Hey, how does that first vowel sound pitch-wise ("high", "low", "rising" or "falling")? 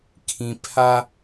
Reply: low